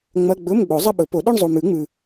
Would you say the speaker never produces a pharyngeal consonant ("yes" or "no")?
yes